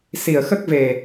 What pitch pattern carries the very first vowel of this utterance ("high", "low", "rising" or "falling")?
low